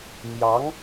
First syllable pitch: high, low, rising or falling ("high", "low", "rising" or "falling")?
rising